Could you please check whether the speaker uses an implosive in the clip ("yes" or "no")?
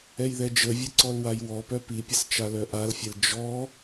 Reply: no